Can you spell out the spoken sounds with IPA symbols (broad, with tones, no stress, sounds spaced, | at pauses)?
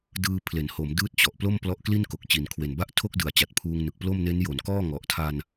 d ɯː˧ pʰ l e˩˦ n h o˩˦ m d ɯː˦˥ t̚ t͡ɕ ɔ˨˩ ʔ p l o˥˩ m p l ɔ˦˥ ʔ k l i˥˩ n k o˨˩ k̚ t͡ɕ i˨˩ n kʰ w e˨˩ n b a˥˩ ʔ tʰ o˥˩ k̚ d ɯ˨˩ a̯ t͡ɕ a˨˩ t̚ pʰ uː˧ ŋ n ɯ˨˩ k̚ p l o˥˩ m n e˦˥ n j o˩˦ n k ɔː˥˩ ŋ ɔ˨˩ ʔ tʰ a˧ n